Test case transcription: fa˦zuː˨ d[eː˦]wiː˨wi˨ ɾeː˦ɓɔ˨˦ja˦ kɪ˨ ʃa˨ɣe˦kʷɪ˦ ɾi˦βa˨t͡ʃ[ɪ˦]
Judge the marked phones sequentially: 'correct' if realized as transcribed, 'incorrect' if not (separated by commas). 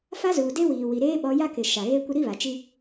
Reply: incorrect, incorrect